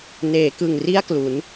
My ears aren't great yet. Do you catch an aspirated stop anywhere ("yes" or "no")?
no